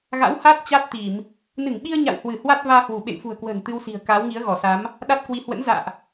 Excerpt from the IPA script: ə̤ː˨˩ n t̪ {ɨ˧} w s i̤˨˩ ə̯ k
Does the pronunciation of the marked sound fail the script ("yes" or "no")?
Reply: no